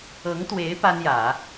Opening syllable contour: rising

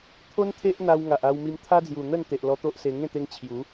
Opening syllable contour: high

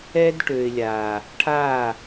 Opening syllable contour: high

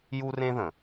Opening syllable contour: high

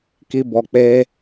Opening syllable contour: high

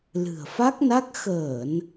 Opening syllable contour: low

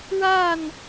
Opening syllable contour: falling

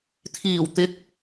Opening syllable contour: low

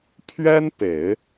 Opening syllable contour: high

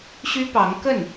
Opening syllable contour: high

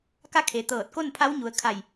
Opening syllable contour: falling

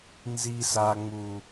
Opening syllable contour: low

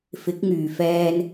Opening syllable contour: rising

